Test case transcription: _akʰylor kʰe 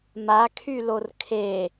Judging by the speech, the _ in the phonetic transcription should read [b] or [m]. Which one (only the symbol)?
m